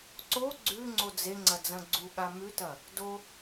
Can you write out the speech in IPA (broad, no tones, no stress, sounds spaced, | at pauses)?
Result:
ǀ o ɡ͡ǀ ʉ ŋ͡ǀ o d͡z e ŋ͡ǀ ɐ d͡z ɐ̃ ɡ͡ǀ u ɠ a m ʉ t ɐ | d o